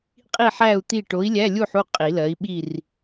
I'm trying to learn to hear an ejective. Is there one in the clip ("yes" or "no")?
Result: yes